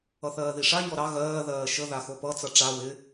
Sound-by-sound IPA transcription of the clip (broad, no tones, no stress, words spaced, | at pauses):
ʌθɜːðiʂa ɲɔɾɑ ɣɜː ðɜːʃə ðaxopʌ t͡sʌʈ͡ʂa wɪ